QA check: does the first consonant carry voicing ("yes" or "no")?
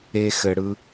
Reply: no